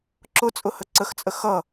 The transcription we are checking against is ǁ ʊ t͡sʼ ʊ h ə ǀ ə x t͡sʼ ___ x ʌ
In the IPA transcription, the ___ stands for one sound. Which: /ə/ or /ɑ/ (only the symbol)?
ə